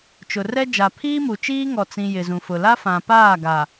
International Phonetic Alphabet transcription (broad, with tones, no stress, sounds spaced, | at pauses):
t͡ʃ ʊ˨ r ɛ˦ d͡ʒ a˨ pʰ iː˦ m u˨ t͡ʃ iː˦ ŋ ɔ˨ t͡s ĩ˨ j ɪ˨ z ũ˨ f ʊ˨ l a˦ f ã˨ p aː˦˨ ɡ a˨